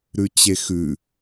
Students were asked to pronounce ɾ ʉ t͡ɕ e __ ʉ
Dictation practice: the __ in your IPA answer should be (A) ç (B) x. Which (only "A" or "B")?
B